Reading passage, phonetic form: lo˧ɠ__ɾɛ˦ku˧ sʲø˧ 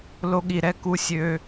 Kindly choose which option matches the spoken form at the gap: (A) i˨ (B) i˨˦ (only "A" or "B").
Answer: A